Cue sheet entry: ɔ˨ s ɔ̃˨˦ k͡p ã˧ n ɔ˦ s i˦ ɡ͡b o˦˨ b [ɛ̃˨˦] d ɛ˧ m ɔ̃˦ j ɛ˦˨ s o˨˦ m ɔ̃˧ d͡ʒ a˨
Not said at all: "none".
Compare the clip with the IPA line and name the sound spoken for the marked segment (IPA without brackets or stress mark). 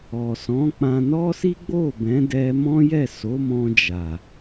ɛ̃˨˦